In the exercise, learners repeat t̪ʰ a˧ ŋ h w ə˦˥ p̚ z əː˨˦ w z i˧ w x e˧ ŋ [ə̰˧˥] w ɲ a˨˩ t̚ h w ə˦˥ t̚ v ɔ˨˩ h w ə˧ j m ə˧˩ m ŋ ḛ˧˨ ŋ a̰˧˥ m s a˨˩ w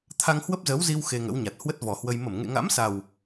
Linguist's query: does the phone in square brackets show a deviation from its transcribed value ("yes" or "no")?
no